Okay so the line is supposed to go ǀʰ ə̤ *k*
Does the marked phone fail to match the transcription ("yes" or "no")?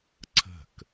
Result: no